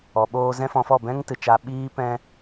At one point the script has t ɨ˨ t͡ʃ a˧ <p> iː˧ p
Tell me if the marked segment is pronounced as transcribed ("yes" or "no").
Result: no